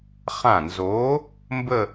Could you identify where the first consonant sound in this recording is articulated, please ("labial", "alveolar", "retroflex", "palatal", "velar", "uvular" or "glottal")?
uvular